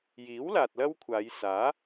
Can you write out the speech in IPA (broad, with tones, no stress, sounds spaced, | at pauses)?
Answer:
j iː˨˥ w l aː˨ t̚ l ɐ˥ w kʷʰ aː˨˧ j s aː˨˥